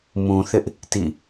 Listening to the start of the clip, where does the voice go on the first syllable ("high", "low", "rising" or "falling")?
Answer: low